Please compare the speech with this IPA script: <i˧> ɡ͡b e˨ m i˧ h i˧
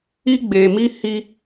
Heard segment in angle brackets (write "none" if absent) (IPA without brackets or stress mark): i˧